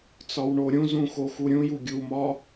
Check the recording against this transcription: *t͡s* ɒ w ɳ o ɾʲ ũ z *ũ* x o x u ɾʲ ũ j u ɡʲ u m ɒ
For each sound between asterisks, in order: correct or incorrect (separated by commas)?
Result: correct, correct